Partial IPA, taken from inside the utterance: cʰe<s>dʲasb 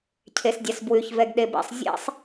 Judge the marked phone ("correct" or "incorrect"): correct